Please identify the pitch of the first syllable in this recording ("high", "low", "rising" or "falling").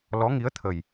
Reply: rising